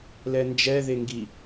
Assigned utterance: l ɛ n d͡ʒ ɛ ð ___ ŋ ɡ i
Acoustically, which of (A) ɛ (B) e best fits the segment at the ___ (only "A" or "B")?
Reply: B